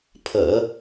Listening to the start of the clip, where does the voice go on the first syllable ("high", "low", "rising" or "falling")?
low